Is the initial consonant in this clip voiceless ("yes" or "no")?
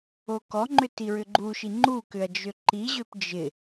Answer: yes